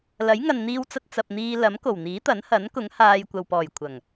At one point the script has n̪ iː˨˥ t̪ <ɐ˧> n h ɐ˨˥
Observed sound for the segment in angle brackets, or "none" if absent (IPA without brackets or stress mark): ɐ˨˥